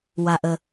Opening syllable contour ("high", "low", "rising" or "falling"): low